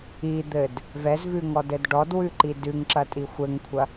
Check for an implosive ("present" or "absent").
absent